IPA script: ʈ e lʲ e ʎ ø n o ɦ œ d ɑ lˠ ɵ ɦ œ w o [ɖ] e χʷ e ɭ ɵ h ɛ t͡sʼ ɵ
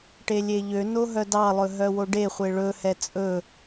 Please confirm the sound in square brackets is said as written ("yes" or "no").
yes